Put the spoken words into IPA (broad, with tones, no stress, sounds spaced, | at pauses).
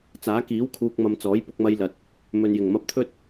t͡s aː˨˥ k iː˨˥ w kʰ uː˨ k̚ m ɐ˨ m t͡s ɔː˨˥ j p ʊ˧ k̚ m ɐ˧ j l ɐ˨ t̚ | m ɵ˨ n j ɪ˨˩ ŋ m ɐ˧ p̚ t̪ʰ ɵ˥ t̚